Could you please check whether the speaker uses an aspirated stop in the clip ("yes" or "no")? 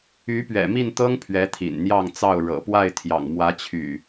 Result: yes